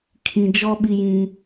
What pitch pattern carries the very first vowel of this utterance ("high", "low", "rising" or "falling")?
low